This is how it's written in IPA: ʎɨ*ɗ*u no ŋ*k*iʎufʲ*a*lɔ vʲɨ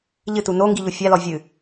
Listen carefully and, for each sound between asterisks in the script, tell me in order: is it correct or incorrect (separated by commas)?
incorrect, incorrect, correct